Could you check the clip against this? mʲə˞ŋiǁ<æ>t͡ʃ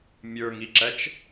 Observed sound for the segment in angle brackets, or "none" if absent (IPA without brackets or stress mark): æ